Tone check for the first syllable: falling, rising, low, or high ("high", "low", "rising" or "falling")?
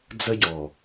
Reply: high